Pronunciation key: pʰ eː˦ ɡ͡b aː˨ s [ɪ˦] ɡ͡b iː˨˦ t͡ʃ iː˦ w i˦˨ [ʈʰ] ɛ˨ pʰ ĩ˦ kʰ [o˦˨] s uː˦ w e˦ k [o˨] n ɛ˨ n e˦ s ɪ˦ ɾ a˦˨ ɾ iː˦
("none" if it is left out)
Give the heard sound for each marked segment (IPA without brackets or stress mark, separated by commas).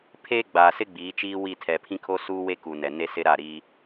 ɪ˦, tʰ, o˦, u˨